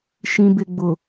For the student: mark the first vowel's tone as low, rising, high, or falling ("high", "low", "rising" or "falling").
low